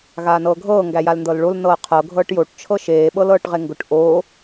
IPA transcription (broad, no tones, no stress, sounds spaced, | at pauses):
ɣ aː n ɤː ɡʱ ɤː ŋ ɡ æ j a l n d ɤ l ɭ o l n ɤː qʰ ɤ ɡʱ ɤː ʈ j o ʈ t͡ʃʰ ɤ ʃ eː ɓ ɤ l ɤː ʈ ʁ e ŋ ɡ ʊ ʈ ʔ o